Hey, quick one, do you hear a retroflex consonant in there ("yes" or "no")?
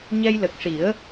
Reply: yes